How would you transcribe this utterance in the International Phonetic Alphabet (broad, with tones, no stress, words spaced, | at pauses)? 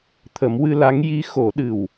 t̪ʰə˨˩˦mwɨ˧ la˧˥ŋ ji˧˥xo˨˩˦ɗɨ˨˩w